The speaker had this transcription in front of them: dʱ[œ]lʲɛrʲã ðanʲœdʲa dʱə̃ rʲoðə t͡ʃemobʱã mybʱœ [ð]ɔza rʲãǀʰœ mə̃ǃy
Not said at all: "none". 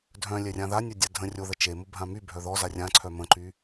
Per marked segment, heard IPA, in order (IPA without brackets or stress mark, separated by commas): œ̃, ð